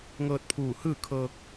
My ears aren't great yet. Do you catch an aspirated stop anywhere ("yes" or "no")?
yes